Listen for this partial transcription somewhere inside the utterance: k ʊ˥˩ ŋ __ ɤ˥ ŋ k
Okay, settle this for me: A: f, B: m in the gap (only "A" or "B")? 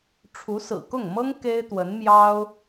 B